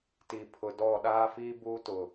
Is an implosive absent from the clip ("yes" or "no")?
no